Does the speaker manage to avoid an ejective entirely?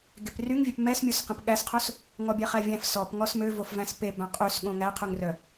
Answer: no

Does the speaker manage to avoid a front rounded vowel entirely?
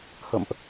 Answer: yes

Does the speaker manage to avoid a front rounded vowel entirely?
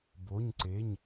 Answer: yes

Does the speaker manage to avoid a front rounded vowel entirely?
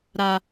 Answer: yes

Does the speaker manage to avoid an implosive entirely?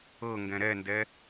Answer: yes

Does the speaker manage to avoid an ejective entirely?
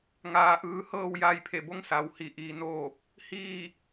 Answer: yes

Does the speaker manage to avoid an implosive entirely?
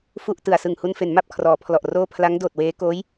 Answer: yes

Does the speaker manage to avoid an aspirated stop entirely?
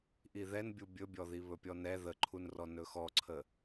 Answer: no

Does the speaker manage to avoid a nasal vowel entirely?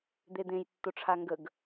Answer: no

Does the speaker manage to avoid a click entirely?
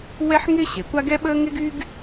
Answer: yes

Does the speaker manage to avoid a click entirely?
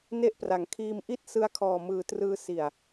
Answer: yes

